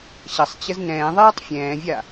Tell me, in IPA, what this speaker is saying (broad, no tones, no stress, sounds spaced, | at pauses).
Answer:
ɕ ʌ sˤ t͡ɕ ə z n ɛ̃ː ðˤ ɛː tˤ fʲ ɛ̃ː vʲ a